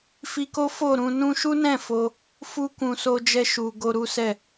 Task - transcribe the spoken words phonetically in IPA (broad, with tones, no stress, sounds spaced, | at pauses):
f i˧ k o˦ f o˦˨ ɾ ũ˧ n ũ˧ ʃ u˦ n ɛ̃˦˨ f o˧ | f u˦ k ũ˧ s o˧ d͡ʒ ɛ˧ ʃ u˨ ɡ o˧ ɾ u˦ s ɛ˦˨